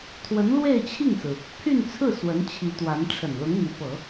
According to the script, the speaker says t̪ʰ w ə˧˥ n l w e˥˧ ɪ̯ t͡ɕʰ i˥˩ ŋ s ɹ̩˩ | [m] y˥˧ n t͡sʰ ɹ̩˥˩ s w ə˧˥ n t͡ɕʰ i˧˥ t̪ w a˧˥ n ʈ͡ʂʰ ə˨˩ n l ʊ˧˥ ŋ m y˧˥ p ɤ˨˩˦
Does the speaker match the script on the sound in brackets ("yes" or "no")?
no